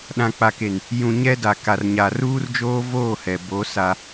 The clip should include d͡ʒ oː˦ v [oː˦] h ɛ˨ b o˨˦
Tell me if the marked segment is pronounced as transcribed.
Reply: no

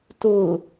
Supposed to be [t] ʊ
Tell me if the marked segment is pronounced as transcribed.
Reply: yes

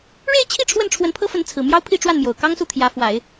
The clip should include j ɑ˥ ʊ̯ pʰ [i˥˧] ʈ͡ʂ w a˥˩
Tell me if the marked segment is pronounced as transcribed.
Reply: yes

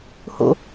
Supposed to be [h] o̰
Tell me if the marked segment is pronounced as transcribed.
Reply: yes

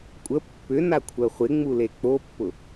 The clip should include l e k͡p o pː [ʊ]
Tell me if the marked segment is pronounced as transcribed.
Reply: yes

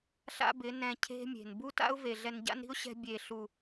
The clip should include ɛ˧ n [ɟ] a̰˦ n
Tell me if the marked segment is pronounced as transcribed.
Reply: yes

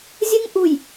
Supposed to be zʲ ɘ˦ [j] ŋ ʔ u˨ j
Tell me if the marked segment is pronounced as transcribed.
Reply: no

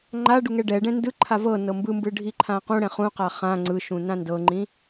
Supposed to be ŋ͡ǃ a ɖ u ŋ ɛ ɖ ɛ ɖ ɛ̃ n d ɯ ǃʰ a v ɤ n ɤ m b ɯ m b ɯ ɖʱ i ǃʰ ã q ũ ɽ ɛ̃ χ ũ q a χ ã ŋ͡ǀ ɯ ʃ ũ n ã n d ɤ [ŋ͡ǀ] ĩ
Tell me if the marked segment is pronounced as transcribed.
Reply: no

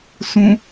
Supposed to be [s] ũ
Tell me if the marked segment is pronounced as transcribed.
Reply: yes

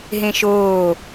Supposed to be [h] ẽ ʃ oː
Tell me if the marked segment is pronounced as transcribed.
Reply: no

